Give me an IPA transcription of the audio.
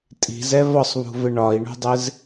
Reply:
tʼ i̤ z ɛ v ɒ sˤ β ṳ v ɪ ɳ ɒ i̯ ɳ ṳ dˤ ɪ z

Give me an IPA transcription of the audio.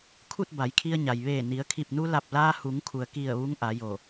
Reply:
kʰ u˥˨ t̚ b a˩˧ j kʰ i˧ ə̯ ɲ a˩ j ʋ eː˧˩ n i˩˧ ə̯ kʰ i˧˩ p̚ n u˧ l a˧˩ p̚ l aː˧ h u˩˧ ŋ kʰ u˩ ə̯ k i˧˩ ə̯ ʋ u˧˥ ŋ ʔ a˩˧ j o˧˩

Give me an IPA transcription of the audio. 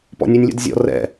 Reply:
p ɔ̰ nʲ ʉ nʲ lʲ o̰ d zʲ ɔ̰ r ɛ̰

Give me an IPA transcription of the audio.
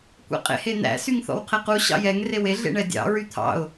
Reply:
kʷ ḛ qʼ ḛ h e n̪ æ̰ s y ŋ θ ɔ̰ w qʰ e q u ɕ ɑ̰ j ɛ ŋ r e w e ɮ ḛ ɳ ɛ dʲ ɑ̰ ɹ y t̪ʰ ɑ̰ ʊ̯

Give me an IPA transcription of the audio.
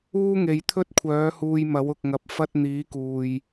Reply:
uː˥ ŋ e˨˧ j t̪ʰ ɵ˥ t̚ kʷʰ œː˨˥ h uː˧ j m ɐ˨˥ w ʊ˨ k̚ ŋ ɐ˨ p̚ f ɐ˧ t̚ n̪ iː˨˥ k uː˨ j

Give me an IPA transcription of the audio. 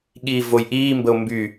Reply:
ɠ iː v o j ʔ iː m b ə o̯ m b y

